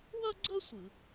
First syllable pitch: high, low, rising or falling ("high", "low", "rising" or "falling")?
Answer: high